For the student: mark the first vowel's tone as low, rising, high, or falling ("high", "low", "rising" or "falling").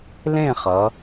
falling